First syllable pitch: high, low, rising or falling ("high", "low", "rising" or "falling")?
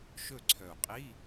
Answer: falling